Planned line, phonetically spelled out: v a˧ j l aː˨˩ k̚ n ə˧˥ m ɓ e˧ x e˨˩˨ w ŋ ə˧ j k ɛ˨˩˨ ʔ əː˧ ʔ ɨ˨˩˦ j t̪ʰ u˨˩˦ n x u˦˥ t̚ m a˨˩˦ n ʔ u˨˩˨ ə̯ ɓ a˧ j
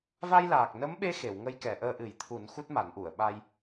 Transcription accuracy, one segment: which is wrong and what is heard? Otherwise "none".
none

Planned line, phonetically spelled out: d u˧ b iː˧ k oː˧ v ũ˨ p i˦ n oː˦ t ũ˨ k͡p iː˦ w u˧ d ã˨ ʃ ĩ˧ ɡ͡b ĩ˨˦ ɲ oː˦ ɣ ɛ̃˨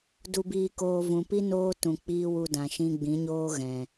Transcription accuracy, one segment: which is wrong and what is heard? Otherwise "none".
none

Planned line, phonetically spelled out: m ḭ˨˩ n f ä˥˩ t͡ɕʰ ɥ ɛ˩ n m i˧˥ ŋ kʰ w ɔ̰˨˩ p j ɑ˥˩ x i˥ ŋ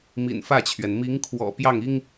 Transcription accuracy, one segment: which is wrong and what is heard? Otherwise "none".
x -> ŋ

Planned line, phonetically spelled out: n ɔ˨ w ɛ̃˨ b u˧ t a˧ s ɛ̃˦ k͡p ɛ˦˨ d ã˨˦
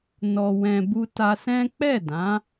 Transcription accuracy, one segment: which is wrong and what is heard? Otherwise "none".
none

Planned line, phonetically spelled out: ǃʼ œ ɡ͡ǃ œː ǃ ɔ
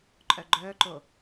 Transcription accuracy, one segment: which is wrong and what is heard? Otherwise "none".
ɔ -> o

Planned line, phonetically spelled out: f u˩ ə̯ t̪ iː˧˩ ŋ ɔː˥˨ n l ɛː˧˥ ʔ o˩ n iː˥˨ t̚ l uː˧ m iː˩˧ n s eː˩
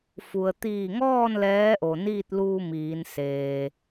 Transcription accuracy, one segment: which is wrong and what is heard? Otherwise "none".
none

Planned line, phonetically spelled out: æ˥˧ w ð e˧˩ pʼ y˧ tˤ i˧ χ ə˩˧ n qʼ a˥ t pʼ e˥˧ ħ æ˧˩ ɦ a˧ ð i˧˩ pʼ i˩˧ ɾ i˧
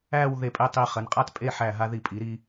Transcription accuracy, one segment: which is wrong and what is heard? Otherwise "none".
y˧ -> e˧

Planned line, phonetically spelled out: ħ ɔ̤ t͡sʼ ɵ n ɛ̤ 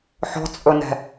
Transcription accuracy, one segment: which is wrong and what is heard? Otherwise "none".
none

